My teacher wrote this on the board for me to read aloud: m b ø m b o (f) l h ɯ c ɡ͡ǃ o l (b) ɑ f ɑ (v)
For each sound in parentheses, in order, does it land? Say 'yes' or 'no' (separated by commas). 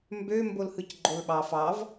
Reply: no, no, yes